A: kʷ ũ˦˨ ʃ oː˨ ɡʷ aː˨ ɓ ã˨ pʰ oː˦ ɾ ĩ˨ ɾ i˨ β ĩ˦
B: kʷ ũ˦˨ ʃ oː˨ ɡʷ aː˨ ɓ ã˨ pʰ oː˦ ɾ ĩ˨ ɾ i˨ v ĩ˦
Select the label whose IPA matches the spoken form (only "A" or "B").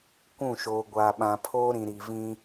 B